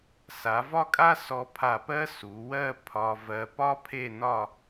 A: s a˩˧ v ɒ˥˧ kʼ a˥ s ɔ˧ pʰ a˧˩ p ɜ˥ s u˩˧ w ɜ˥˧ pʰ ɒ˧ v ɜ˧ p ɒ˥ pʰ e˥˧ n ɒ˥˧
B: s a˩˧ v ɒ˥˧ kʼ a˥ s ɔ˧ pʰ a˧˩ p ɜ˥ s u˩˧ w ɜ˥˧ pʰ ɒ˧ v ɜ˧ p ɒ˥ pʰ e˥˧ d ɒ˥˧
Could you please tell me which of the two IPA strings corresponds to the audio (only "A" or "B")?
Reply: A